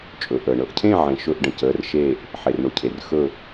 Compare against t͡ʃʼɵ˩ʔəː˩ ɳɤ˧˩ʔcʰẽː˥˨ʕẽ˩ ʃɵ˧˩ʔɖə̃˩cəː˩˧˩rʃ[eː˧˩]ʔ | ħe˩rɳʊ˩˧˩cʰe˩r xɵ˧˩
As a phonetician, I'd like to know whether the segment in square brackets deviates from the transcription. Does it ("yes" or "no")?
no